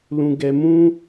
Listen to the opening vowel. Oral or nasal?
nasal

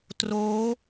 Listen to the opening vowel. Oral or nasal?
oral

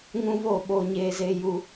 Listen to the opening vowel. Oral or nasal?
nasal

